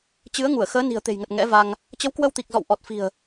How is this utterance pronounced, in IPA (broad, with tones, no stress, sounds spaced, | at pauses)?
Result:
t͡ɕ ɨ˨˦ ə̯ ŋ u˧˩ ə̯ x əː˨˦ n i̤˨˩ ə̯ t̪ e̤˨˩ j ŋ ə˨˩ t̚ ŋ ɛ̰˧˥ v a˧ ŋ | t͡ɕ ə˨˦ w k w ə˧ w t̪ i˨˩ k̚ z ɔ̰˧˨ w ʔ ɔ˨˩ t̚ f i̤˨˩ ə̯